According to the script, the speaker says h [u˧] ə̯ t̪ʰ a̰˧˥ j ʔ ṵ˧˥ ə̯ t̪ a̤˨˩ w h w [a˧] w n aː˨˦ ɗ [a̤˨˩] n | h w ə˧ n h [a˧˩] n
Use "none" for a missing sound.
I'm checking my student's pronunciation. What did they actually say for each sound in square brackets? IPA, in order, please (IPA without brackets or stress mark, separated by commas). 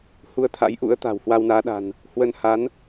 u˨˦, a˧, a̤˨˩, a˨˦